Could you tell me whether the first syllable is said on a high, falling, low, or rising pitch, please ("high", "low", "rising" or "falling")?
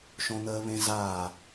high